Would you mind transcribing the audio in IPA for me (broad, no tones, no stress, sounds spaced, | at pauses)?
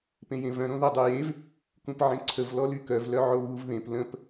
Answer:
p ẽ j ẽ v œ̃ ɾ õ ð œ dˤ o j e v | k ũ p ʕ ẽ ǀʰ ə v l ɔ l y k œ v l œ ʕ o β u v ð ẽ p l ə̃ p